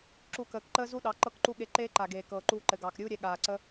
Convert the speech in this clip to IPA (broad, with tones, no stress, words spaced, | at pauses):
ǁu˧ kəː˨kǃəː˦ zu˦ɗɑ˨˦ ǃɤ˦kǃu˦ɠe˧ ǃeː˦ǃa˨ɡeː˨ kɤː˨ǃuː˧ǃɘ˨ɡɑː˨k ɾʲuː˦ɾʲɛ˧ ɠaː˨ǀə˦